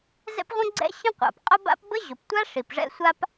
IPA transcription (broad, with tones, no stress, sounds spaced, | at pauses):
z ɛ̰˥ p ʁʷ ə̃˥ ɡ͡ǀ ɛ̰˥ ɕ ə̃˥ qʷ a̰˩ p qʼ ʊ˥ b a̰˥ p b ə˥ ʑ ʊ˩ p tʷ a˥ ʂ i˩ p ʐ ɛ̰˥ sʷ a˥ p